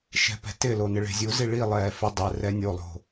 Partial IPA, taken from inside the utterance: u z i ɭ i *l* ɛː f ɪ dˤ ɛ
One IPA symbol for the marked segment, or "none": lˠ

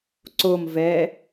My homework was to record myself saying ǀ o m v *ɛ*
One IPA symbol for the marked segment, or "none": ɛ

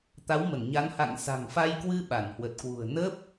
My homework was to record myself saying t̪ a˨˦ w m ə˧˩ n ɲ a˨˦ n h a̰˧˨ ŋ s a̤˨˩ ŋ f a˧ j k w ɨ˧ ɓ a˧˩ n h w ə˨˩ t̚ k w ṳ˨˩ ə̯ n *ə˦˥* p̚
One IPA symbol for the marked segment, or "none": əː˦˥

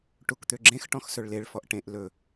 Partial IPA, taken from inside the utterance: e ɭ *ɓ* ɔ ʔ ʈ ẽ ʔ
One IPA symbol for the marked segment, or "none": f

